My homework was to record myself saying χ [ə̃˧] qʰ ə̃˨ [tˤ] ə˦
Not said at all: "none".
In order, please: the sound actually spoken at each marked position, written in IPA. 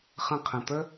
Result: ə̃˧, t̪

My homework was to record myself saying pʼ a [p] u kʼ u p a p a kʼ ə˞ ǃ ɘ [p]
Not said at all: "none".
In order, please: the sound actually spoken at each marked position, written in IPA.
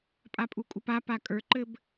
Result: pʼ, b

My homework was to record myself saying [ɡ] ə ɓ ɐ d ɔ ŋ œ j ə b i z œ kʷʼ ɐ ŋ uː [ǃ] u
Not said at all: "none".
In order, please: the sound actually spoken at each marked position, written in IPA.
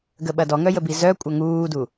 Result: ɡ, d

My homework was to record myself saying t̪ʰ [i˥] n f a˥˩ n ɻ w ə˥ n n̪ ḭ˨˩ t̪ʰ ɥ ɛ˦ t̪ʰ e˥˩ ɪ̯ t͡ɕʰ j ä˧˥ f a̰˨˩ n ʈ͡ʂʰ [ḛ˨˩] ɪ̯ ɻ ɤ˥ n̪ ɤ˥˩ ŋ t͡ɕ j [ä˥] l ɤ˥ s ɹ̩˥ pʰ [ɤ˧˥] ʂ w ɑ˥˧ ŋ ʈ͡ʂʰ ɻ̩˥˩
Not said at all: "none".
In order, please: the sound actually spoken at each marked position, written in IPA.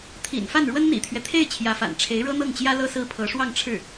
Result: ḭ˨˩, e˧˥, ä˥, ɤ˧˥

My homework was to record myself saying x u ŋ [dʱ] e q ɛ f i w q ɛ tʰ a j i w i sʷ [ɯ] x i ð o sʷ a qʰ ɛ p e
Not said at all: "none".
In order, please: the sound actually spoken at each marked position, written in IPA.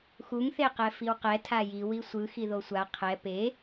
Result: θ, ɯ

